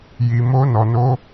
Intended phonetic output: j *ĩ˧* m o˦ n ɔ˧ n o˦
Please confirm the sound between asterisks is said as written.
no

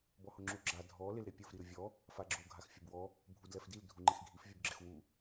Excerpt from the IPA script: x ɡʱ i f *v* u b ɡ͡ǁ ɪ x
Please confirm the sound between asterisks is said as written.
no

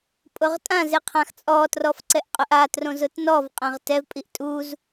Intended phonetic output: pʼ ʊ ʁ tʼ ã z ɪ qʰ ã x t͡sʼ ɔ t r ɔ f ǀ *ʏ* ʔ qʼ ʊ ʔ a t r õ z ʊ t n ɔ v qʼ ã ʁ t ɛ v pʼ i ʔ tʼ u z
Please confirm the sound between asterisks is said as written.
no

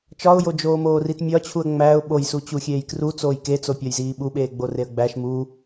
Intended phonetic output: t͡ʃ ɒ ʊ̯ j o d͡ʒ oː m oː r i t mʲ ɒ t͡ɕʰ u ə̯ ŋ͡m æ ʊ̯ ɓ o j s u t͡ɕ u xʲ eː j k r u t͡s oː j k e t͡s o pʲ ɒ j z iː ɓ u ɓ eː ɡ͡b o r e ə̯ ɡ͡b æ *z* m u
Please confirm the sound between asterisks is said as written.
no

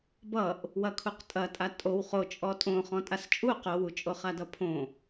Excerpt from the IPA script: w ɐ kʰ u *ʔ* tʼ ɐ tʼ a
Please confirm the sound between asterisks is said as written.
no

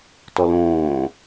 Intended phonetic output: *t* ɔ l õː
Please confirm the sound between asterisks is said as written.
yes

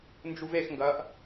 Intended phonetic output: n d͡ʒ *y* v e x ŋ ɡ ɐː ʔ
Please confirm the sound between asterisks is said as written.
no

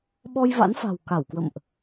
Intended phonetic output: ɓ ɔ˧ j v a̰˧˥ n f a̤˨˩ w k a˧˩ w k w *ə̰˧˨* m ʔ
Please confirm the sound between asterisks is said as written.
yes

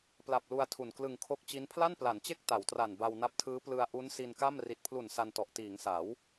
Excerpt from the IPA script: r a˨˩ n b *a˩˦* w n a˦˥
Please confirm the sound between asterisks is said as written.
no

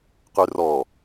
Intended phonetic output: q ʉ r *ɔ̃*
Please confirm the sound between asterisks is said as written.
no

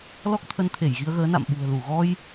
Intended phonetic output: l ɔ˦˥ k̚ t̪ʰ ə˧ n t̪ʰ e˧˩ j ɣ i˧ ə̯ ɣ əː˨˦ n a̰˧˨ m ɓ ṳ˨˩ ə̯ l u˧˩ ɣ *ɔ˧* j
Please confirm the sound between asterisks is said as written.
yes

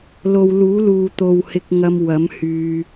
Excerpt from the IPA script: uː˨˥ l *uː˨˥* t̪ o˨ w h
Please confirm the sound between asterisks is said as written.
no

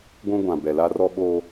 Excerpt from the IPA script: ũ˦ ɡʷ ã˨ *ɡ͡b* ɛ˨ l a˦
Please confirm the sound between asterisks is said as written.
no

